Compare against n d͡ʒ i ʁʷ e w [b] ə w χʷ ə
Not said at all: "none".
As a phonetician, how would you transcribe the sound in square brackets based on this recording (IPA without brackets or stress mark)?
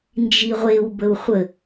b